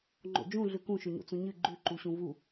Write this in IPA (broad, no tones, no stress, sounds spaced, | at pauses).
ŋ͡ǃ o̰ d͡ʒ ũ ɮ ʉ k ũ ʃ ɵ ɲ o̰ t͡s ũ ɲ ɨ ɡ͡ǃ ʉ ǃ u ɕ ũ v u